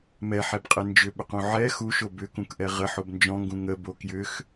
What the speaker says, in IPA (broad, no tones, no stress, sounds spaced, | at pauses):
m ɛ ħ ɛ b qʼ e n d͡ʒ ʏ ɓ ʏ q ũ ʕ ɛ x u ʃ o b ʏ k ũ k ʔ ɛ ʁ ə ħ o b n d͡ʒ ɔ̃ ŋ ɡ ũ ŋ ə b o k j ʏ x